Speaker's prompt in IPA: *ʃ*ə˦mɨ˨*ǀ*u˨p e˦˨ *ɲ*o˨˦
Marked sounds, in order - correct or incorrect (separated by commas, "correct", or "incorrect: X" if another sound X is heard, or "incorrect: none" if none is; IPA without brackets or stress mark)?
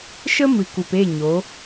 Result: correct, incorrect: k, correct